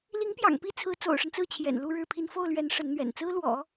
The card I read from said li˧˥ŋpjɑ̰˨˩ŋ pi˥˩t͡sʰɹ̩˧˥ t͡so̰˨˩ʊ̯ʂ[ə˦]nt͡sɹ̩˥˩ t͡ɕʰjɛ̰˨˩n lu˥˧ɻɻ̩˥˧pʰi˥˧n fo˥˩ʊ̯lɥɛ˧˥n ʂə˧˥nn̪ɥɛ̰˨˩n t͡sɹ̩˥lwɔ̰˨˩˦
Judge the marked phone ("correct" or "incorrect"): correct